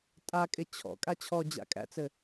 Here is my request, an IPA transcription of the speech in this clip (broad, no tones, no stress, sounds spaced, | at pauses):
tʼ a kʼ ɪ t͡ɕʰ ɔ̰ kʼ a t͡ɕʰ ɔ d͡ʑ a̰ kʼ æ̰ t͡s ɘ